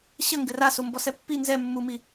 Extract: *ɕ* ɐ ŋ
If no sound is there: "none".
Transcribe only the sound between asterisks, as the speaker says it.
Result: ɕ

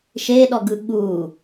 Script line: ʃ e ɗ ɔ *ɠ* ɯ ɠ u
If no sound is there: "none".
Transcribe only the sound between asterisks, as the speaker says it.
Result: ɡ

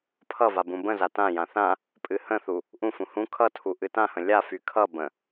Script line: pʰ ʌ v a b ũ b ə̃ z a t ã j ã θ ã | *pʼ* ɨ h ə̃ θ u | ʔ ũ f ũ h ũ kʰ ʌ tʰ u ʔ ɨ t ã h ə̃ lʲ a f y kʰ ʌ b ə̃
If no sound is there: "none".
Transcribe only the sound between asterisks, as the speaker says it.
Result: pʼ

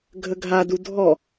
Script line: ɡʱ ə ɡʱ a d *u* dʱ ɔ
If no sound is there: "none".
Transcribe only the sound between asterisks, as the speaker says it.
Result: u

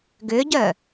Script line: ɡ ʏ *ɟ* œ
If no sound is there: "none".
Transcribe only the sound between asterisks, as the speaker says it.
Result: ɟ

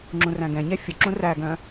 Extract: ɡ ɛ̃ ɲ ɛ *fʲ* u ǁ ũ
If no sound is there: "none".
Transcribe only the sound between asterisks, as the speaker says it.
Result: fʲ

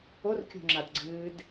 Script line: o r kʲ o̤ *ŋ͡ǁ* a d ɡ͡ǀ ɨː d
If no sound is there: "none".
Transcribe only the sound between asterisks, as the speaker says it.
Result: ŋ͡ǁ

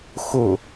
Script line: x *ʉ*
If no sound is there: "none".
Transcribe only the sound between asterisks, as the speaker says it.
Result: ʊ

